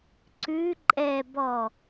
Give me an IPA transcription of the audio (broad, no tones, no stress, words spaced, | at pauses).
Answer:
ǀʉ ǃʼɛ bɔ